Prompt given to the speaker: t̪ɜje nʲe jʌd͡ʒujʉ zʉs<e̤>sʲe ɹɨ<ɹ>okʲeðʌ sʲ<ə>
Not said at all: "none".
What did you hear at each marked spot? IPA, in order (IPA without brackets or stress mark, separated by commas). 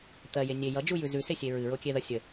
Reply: e, ɹ, ə